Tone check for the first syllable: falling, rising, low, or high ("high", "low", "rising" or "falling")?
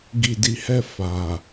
low